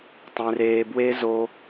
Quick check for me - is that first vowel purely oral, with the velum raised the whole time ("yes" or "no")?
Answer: no